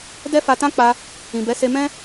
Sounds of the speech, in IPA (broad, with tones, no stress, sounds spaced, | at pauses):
d ɛ˦ f a˧ t ã˦ k͡p a˧ | ĩ˨ b ɛ˨˦ s e˧ m ɛ̃˦